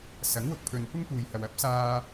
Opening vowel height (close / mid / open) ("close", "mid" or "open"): open